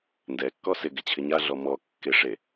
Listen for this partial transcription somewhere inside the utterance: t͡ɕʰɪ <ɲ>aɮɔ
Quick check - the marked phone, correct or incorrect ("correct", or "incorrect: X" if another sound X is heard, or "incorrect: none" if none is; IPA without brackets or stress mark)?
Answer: correct